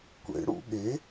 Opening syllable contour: rising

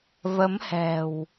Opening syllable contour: rising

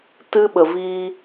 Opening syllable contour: high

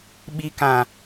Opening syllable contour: high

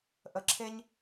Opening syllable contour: low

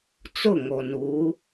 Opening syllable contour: falling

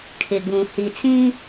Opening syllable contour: low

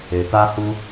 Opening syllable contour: low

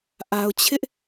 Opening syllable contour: low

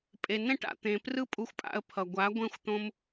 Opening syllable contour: low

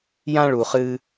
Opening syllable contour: high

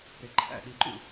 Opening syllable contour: low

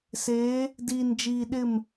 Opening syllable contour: rising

